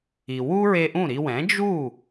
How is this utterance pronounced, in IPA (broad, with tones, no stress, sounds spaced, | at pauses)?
i˩ w u˥ ɹ e˧ ʔ ũ˥˩ ɾ i˧ w ɛ̃˩˥ d͡ʒ u˥˩